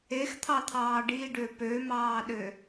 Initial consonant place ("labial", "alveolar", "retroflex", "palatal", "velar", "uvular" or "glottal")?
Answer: velar